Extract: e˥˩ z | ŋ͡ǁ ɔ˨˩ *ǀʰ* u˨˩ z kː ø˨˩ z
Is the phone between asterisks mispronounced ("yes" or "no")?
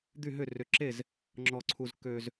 no